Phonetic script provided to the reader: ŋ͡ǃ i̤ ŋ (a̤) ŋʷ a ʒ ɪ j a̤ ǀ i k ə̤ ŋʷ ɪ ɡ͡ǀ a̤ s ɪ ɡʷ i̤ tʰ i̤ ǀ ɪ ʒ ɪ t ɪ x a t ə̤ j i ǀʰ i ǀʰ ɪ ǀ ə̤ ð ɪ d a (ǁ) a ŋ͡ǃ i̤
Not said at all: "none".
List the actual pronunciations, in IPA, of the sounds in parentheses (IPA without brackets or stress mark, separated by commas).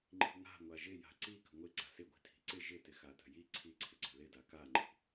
a̤, k